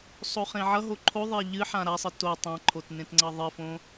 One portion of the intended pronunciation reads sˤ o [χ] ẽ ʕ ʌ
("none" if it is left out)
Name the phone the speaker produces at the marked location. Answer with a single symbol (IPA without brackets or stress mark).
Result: χ